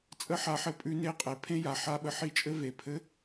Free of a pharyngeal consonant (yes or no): no